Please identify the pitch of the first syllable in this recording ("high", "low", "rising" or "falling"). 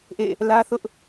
falling